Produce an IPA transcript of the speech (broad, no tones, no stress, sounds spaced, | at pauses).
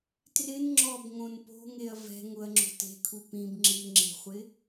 t r ɪ n ŋ͡ǁ ɔ b ŋ õ n p o̤ ŋ e ɐ̯ v ɛ̤ ŋ ʊ ɐ̯ ŋ͡ǁ o̤ t e̤ kʰ u p ĩ b ŋ͡ǁ i ŋ͡ǁ e̤ χʷ ɪ